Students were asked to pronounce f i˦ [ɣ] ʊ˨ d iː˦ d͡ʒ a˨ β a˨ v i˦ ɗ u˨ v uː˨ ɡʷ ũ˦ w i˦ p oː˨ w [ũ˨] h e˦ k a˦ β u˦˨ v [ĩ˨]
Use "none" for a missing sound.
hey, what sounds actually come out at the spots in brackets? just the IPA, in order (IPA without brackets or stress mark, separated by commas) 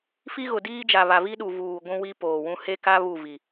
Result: ɣ, ũ˦, i˨